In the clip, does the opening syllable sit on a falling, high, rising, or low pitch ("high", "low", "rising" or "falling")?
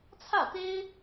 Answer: falling